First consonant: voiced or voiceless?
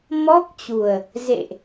voiced